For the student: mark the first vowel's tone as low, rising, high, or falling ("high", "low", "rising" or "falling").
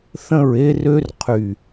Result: falling